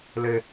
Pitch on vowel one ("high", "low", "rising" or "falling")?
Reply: high